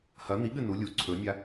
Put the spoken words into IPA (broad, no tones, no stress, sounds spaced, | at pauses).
h ɐ n̪ i ɠ ɨ n u lʲ u ǀʰ ɵ nʲ a